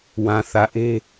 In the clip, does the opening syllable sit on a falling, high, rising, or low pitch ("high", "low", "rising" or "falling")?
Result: low